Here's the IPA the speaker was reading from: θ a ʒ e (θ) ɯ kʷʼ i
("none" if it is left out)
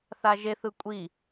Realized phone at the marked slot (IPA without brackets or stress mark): θ